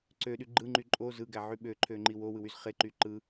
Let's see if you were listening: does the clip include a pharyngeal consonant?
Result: yes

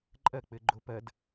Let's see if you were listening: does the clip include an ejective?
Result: yes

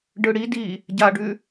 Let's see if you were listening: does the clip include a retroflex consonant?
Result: yes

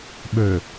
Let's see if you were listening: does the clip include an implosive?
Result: yes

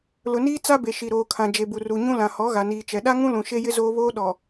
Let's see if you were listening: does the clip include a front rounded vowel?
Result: no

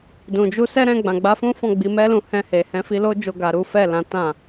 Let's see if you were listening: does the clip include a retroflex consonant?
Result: no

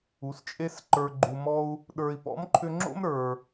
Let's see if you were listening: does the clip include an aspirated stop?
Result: yes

